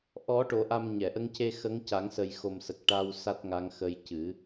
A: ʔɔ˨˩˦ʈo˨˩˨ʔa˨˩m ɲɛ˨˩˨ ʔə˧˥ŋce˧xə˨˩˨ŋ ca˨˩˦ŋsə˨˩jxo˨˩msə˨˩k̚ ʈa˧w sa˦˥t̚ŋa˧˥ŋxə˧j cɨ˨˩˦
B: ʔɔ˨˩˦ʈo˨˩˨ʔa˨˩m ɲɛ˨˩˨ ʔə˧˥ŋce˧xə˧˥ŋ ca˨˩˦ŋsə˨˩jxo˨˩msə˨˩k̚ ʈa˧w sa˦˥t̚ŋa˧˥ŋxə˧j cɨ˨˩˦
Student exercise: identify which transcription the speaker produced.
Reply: B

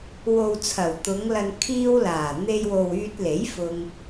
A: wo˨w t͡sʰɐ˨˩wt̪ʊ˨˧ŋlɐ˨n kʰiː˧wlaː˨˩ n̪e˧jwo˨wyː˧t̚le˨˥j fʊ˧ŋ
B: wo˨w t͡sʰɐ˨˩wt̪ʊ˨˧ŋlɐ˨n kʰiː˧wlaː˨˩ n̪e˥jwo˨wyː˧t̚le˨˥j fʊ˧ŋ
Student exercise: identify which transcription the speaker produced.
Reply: A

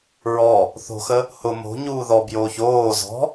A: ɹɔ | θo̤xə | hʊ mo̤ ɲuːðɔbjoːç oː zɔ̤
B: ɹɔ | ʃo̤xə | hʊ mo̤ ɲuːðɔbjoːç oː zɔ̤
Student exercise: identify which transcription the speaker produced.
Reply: A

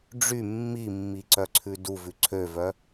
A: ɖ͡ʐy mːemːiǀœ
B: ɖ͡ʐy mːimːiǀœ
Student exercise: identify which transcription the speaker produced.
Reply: B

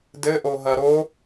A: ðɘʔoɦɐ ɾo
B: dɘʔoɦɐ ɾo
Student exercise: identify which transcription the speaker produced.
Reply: B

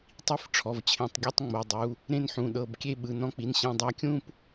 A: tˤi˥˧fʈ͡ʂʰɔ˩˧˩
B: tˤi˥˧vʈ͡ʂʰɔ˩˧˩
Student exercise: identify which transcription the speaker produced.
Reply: A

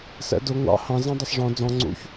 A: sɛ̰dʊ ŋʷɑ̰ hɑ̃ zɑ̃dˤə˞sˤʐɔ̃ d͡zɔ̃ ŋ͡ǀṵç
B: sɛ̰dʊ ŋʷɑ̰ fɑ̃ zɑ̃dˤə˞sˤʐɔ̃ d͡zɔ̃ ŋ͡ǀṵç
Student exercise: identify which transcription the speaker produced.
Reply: A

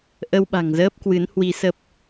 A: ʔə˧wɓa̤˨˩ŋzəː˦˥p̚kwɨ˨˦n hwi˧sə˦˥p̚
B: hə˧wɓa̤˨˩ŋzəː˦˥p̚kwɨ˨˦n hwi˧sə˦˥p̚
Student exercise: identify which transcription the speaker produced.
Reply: A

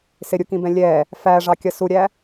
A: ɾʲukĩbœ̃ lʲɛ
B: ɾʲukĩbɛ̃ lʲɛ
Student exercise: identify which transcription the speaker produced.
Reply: B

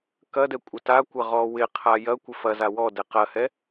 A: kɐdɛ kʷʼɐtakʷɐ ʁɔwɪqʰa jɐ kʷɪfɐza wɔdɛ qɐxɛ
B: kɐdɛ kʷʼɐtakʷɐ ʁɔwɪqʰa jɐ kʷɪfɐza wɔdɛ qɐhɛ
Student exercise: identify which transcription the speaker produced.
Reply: B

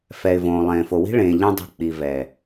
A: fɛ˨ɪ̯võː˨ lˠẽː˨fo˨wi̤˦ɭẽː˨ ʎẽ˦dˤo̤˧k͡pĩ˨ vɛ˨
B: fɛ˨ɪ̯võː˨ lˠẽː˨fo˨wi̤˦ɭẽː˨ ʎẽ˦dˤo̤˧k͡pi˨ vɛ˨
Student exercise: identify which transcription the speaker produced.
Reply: B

